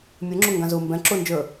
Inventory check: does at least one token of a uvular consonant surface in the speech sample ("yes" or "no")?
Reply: no